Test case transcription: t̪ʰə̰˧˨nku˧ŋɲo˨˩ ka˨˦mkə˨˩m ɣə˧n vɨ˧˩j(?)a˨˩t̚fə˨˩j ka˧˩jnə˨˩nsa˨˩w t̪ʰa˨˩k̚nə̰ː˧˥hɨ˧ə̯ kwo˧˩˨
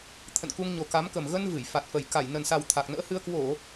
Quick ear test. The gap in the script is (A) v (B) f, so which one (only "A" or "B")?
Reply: B